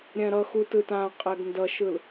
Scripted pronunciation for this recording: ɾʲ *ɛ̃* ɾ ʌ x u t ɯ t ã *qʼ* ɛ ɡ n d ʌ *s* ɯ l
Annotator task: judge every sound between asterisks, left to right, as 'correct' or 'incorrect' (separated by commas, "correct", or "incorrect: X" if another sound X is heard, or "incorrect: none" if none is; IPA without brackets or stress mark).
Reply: correct, correct, incorrect: ʃ